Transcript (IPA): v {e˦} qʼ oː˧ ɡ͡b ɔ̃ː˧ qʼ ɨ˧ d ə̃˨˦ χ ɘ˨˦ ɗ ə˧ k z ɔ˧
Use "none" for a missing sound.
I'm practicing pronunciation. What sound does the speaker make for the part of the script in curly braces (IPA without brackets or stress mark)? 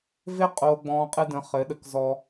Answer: e˦